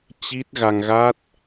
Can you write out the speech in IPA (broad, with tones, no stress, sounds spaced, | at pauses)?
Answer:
t͡ɕ i˦˥ t̚ ɣ a˧ ŋ ɣ a˦˥ t̚